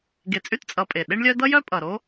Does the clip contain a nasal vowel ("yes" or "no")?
no